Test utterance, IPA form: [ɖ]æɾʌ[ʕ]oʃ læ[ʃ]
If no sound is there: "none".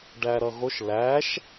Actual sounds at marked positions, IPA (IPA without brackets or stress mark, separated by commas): ɖ, ɣ, ʃ